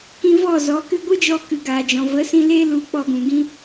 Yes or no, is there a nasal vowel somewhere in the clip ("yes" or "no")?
yes